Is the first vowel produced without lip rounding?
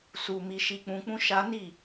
no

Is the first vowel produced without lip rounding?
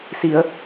yes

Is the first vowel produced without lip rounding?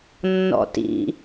no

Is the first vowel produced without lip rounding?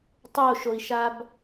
no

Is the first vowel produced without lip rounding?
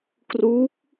no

